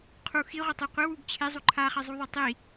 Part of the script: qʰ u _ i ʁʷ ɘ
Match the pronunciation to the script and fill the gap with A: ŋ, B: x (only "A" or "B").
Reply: B